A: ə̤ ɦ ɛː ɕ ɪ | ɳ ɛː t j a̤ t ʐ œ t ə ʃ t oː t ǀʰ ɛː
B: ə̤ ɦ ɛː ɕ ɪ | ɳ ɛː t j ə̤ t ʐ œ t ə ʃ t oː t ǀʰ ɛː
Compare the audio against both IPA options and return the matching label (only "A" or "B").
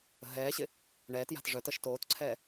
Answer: A